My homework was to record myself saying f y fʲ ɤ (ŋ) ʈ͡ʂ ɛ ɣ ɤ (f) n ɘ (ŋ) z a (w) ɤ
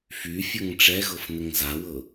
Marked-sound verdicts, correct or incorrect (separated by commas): correct, correct, correct, correct